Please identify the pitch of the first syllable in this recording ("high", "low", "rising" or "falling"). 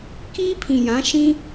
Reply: high